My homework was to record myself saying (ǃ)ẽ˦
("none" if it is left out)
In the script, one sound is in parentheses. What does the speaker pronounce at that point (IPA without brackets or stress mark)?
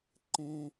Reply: ǃ